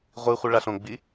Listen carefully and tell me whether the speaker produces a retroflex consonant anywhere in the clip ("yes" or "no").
yes